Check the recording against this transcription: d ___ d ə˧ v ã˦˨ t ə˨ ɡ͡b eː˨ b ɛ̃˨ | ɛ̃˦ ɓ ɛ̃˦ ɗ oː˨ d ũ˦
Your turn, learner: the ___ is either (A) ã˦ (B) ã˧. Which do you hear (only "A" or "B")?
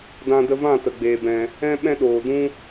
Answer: B